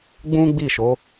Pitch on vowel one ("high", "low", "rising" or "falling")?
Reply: high